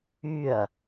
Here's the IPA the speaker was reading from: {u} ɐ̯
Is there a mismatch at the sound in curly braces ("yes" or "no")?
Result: yes